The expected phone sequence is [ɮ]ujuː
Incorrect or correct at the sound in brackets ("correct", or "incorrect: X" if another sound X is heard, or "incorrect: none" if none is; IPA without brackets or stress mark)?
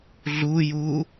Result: correct